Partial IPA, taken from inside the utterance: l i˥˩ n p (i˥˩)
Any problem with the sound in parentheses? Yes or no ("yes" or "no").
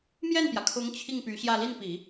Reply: yes